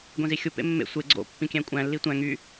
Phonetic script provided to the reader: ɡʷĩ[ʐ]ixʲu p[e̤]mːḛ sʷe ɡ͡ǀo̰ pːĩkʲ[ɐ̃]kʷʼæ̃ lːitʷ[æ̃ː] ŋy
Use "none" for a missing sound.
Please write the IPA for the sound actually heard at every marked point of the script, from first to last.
z, ḛ, æ̃, æ̃

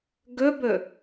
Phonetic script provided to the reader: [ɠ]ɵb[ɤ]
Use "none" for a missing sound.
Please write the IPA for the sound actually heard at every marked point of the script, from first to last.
ɡ, ɵ

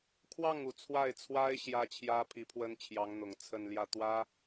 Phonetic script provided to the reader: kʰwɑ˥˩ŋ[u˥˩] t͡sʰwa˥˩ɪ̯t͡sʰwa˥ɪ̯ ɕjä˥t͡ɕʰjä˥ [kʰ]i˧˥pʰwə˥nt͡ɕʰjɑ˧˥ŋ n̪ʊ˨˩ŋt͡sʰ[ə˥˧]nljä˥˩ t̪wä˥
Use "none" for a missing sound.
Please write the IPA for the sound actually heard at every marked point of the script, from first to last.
u˨˩, pʰ, ə˥˧

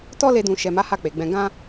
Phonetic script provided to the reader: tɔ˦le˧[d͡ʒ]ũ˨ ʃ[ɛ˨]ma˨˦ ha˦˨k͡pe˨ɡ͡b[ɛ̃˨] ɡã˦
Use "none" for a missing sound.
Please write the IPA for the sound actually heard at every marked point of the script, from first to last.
d, ɛ˨, ɛ̃˧

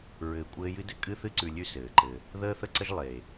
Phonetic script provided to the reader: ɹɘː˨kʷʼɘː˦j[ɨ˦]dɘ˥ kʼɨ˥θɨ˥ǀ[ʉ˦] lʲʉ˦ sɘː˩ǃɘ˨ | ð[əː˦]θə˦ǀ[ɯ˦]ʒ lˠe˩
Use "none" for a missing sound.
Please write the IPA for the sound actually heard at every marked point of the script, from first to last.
ɨ˥, ʉ˨, əː˦, ə˦

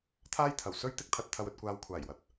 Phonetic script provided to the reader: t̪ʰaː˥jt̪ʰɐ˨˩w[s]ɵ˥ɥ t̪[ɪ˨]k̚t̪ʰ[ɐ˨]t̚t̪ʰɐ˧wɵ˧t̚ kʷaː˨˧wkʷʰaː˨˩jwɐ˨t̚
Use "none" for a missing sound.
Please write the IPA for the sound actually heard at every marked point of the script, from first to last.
s, ɪ˥, ɐ˧

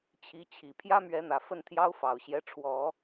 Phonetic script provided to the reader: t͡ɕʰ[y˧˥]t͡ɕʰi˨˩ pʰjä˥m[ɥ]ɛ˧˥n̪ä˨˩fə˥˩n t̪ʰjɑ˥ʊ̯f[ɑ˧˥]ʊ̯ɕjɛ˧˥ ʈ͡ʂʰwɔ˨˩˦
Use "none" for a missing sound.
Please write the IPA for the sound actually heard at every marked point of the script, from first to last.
i˧˥, ɥ, ɑ˨˩

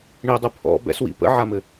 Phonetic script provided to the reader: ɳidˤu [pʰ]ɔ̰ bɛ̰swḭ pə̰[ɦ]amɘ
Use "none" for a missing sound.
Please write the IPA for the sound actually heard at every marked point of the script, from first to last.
pʰ, ʕ

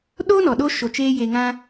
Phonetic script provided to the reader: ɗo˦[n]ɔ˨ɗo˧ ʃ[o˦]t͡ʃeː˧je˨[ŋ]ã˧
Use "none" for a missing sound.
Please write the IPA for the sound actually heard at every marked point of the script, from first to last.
n, o˨, ŋ

